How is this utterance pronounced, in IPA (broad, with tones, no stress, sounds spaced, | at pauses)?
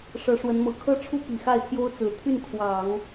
ʂ ɤ˧˥ ʂ w ə˧˥ n m ɤ˨˩ kʰ ɤ˥ ʈ͡ʂʰ u˥ p i˨˩ x a˥˩ ɪ̯ t̪ʰ j o˥ ʊ̯ t͡s ɹ̩˨˩ t̪ʰ y˥˩ n kʰ w ɑ˨˩˦ ŋ